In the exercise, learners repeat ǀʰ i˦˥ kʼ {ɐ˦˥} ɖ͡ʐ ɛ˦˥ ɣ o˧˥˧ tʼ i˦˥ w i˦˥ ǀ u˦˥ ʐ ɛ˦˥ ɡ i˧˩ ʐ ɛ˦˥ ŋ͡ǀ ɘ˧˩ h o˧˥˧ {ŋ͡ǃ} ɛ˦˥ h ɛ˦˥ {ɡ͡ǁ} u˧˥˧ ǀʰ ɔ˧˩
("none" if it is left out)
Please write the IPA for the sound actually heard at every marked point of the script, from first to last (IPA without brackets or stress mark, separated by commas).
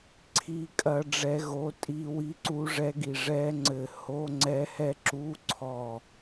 ɐ˦˥, ŋ͡ǀ, ǁ